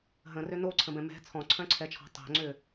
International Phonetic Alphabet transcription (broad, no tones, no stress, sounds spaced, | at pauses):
ɦ ə̃ r ʏ n o ǀʰ ə̃ b ɛ̃ m ɛ̤ t͡sʰ ɔ̃ ǀʰ œ̃ ǀʰ ɛ t͡ʃʰ ɔ̤ tˤ o̤ ŋ͡ǀ ʏ